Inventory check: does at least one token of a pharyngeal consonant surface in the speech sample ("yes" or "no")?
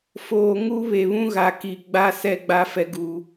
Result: no